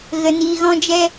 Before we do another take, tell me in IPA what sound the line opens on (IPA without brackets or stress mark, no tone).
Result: ɣ